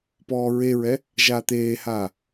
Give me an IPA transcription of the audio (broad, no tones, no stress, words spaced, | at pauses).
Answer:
pɔːɹeɹɛ | ʒaːt̪eːhaː